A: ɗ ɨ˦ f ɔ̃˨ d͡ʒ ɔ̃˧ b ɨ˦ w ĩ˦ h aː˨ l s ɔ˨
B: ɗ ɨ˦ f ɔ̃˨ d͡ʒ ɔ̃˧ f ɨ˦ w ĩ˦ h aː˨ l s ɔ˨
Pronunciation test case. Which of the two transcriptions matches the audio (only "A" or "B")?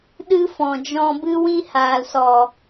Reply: A